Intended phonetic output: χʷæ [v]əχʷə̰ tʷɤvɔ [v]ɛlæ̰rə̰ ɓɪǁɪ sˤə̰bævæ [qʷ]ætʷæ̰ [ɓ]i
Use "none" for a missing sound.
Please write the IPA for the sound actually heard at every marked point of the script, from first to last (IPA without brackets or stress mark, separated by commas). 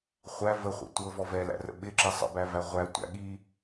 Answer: v, v, ʁʷ, ɠ